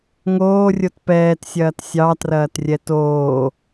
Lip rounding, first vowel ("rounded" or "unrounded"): rounded